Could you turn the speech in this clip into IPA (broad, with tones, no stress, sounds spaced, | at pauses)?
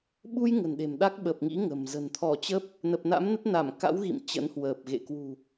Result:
ɓ u˧ j ŋ ə̤˨˩ n ɗ e̤˨˩ m ɗ a˦˥ k̚ ɓ ə˨˩ p̚ ŋ ḭ˧˥ ŋ ə̤˨˩ m z ə̤˨˩ n t̪ʰ ɔ˧˩ t͡ɕ ə˦˥ p̚ | n ə˨˩ p̚ n a̰˧˥ m n ə˦˥ t̚ n a˧˩ m k a̰˧˥ w ɣ ḭ˧˨ m t͡ɕ ə̰˧˥ n h w əː˨˩ p̚ ɣ ḛ˧˨ k w ṳ˨˩